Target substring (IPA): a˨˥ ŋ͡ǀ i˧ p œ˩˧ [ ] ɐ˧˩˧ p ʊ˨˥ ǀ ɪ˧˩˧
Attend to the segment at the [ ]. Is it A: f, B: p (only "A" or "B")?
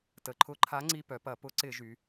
B